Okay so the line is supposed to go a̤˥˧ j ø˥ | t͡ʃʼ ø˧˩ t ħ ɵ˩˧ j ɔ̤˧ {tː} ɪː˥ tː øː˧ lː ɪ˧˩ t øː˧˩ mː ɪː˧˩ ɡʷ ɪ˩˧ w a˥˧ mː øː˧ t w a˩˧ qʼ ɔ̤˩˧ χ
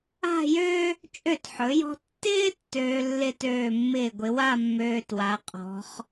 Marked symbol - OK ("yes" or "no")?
yes